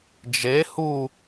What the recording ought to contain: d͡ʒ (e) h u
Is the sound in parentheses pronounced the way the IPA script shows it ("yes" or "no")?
yes